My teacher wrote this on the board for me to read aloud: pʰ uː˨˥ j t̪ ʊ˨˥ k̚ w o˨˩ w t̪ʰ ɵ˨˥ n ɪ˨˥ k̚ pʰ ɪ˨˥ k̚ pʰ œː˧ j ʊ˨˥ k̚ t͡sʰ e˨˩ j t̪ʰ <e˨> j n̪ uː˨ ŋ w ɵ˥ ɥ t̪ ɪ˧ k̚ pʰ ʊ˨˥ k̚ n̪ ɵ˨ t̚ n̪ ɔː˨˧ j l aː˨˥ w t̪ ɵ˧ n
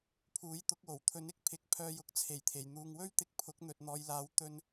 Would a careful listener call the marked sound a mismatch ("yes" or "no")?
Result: yes